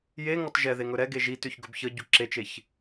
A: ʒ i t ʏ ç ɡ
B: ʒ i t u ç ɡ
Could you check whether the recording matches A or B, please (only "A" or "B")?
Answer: A